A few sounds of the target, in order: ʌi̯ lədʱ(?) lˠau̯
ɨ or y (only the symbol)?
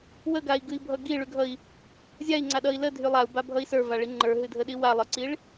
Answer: y